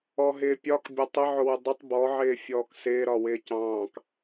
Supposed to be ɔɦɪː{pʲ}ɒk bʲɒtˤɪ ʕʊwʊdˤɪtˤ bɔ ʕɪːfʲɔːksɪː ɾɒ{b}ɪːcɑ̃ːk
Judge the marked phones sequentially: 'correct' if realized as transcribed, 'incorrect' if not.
correct, incorrect

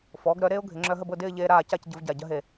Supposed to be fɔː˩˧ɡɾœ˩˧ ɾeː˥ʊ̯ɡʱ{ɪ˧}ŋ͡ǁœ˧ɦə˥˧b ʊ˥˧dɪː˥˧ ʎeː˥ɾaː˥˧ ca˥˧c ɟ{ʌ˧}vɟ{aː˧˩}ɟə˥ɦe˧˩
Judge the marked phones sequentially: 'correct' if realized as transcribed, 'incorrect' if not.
incorrect, incorrect, incorrect

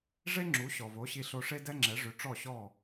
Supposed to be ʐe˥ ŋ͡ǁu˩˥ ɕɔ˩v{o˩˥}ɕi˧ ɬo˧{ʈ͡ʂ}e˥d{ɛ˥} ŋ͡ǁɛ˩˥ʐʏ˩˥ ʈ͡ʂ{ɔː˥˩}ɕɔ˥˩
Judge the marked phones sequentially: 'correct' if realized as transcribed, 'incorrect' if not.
correct, incorrect, correct, incorrect

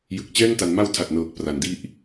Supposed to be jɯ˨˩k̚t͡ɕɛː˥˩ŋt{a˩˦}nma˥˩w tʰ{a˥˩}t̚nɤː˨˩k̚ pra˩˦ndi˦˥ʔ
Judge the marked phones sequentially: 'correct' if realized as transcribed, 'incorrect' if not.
correct, incorrect

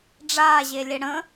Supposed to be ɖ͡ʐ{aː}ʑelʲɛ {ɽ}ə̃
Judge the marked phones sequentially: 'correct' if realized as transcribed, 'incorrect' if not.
correct, correct

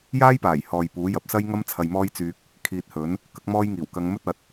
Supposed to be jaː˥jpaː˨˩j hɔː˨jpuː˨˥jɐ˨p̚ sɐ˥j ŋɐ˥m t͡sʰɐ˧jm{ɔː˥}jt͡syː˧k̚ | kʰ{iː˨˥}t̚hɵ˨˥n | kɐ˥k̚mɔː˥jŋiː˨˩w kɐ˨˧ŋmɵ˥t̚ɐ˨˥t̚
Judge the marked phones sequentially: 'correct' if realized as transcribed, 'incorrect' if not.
correct, incorrect

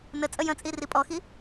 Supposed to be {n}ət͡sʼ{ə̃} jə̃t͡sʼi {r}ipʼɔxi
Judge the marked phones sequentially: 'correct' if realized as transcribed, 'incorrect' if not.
correct, incorrect, correct

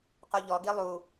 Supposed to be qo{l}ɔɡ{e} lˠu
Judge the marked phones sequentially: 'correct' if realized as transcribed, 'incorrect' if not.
incorrect, incorrect

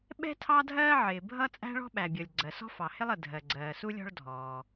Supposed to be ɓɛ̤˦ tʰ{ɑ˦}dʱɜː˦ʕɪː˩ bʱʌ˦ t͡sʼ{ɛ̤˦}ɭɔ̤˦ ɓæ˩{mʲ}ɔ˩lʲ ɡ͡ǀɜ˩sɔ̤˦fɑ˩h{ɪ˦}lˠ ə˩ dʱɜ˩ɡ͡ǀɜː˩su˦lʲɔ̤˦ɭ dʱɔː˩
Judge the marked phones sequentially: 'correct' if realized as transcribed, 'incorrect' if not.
correct, incorrect, incorrect, correct

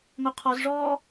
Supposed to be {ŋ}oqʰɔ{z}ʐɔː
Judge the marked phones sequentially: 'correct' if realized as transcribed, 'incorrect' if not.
correct, correct

